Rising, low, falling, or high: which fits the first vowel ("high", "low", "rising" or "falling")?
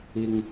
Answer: low